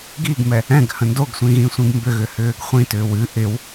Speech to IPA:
ɡ i ɡ m ɛ | ɛ̃ ɡ h ə̃ n d o ɡ sʷ ĩ ɣ ĩ sʷ ĩ ɡ m b ʏ ɣ ʏ h ʏː ɡ χʷ ĩ t ʏː w ɨ ʔ ɪ w

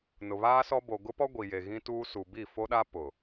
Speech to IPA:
n ʊ˨ β aː˦ s ɔ˦ b o˨ ɡ ʊ˦ p ɔ˦ ɡʷ i˨ j e˨ ɣ ĩ˦ t uː˦ s u˨ b i˦˨ f o˦ ɗ a˦ p ʊ˨

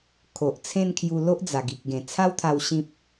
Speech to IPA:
kʰ o˨ ʔ t͡sʰ ẽ˥˧ n kʰ j u˧ l o˦ ʔ d͡z a˨˩ ɡ i˨ k̚ ɡ ẽ˨˩ t͡sʰ a˦ w t̪ʰ a˧ w ɕ ĩ˦ p̚

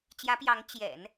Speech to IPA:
t͡ɕ j ä˧˥ p j ɑ˧˥ ŋ t͡ɕ j ɛ̰˨˩˦ n

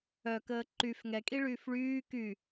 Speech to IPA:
œ k əː ǃ y f ŋ ɛ kʼ i ɭ yː f ɭ yː k y

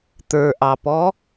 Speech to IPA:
t̪ ə˞ ʔ ɑ p ɔ

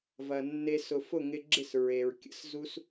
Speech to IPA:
v ɐ˨ nː e˧ s ʊ˨ f ʊ˦˨ ŋ ɪ˧ ɡ͡ǁ ɪ˦˨ s ɹ e˨ ɹ kʲ ə̰˧ s z u˦ s

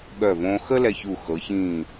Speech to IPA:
ɠ œ˧˩ v õː˧ x ə˥ l ɛ˧ ç u˧˩ x ɤ˩˧ ç ĩː˧˩

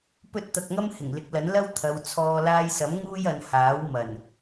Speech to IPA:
p ɵ˥ t̚ t̪ ɐ˧ k̚ ŋ ɐ˥ m h ɪ˨˩ ŋ l ɪ˨˥ k̚ l ɐ˨˥ n l ɐ˥ w t̪ʰ ɐ˨˧ w t͡sʰ ɔː˧ l aː˧ j s ɐ˨˥ m ŋ uː˥ j ɐ˨˧ n h aː˨˥ w m ɐ˨˩ n

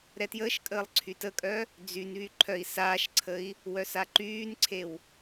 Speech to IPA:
ɾ ɛ t j əː ʃ kʼ əː lˠ ǀʰ y t ə kʼ œ | d͡z y n β y ǃʰ œ i̯ s aː ʃ ǀʰ ə i̯ | w œ s a ǃ yː n ǀʰ e w

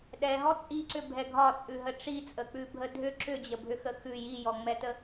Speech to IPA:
ɗ ɛ ɦ ɔ t͡sʼ i ǀ ʏ bʱ ɛ ɡʱ ɒ t͡sʼ ʉ ɦ ə ʈ͡ʂ i t͡sʼ ə k͡p ʉ bʱ ə dʱ ʏ ǁ ʏ d͡ʑ ə bʱ ʏ x ə x ʉ j i j ɔ ŋ͡m ɛ t ə

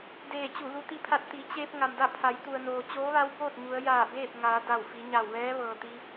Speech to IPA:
d eː˧˩ t͡ɕ u˧˩ l u˧ t̪ i˧ pʰ a˧ t̚ t̪ i˩˧ t͡ɕ eː˧ p̚ ŋ a˩ m d a˥˨ pʰ a˩˧ j t̪ u˩ ə̯ n oː˩ t͡ɕ oː˧˥ ʋ a˧˥ w b oː˥˨ t̚ ɲ u˩˧ ə̯ j aː˧˩ b eː˥˨ p̚ ŋ aː˩˧ d a˧˩ w f i˩˧ ɲ a˧˩ w ʋ ɛː˧˥ ʋ ɤː˩ t̪ i˧

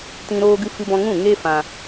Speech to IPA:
t ĩ˧ ɾ oː˦ ɡ ɨ˦ f ɨ˦ b ɔ̃˦ ŋ ũ˦˨ ŋ e˦ f ã˦

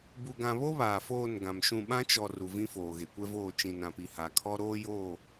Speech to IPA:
b u˨ ɡ ã˨ β o˦ β aː˨ f oː˦˨ n ɡ ã˨ m ʃ ũ˦˨ ɓ ã˦ t͡ʃ ɔ˨ r u˨ v ĩ˦ f oː˨ ɣ e˨ kʷ ɛ˦ v oː˦˨ t͡ʃ ĩ˨ n ã˨ p i˨ h a˨ kʰ ɔ˦ ɾ oː˦ j oː˦˨

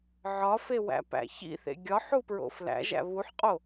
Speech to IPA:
ʕ ɒ f e w æ̰ p æ̰ ç ḭ θ ḛ ɡʲ ɒ ħ u p ɹ o̰ f l æ̰ ʒ æ̰ β u ħ qʼ o

